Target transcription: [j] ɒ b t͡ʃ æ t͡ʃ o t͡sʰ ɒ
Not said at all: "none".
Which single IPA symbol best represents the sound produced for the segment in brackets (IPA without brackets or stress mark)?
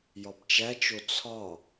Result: j